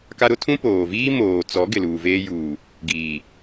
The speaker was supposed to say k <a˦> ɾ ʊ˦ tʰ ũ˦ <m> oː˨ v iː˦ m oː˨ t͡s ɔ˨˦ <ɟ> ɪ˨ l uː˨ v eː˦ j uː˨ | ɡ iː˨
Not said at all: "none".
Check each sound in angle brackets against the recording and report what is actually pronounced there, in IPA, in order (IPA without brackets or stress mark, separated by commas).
a˦, p, ɡ